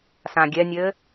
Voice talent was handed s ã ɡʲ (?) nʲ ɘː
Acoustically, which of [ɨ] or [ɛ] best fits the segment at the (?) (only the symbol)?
ɛ